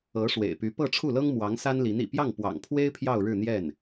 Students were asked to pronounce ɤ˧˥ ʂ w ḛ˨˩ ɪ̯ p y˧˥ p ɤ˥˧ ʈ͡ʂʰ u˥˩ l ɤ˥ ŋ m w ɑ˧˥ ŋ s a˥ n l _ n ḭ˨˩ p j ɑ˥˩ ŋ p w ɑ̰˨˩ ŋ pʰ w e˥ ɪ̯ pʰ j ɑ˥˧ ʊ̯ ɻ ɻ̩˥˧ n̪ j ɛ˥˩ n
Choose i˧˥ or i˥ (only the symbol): i˧˥